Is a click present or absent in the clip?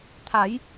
absent